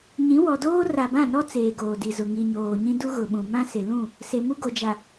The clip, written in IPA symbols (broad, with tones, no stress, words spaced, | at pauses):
ɲĩ˨˦wɔ˨doː˦ ra˨bã˦˨nɔ˦ t͡seː˨ɡoː˨di˨zʊ˨ ŋi˨ɲoː˨ɲĩ˦ du˦ɣʊ˨ɓũ˨ mã˦sɪ˨lũ˦˨ | se˨mu˦ɡo˨d͡ʒa˨